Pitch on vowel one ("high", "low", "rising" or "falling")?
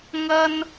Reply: high